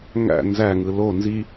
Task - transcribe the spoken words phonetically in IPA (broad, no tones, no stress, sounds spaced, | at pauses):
ŋ æ̰ n z æ ŋ ɯ l o n z i